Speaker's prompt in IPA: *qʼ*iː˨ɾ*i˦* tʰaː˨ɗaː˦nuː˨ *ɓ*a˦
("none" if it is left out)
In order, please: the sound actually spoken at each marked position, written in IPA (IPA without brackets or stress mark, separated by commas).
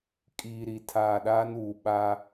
kʼ, i˨, ɓ